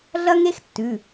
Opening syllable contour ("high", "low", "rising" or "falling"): high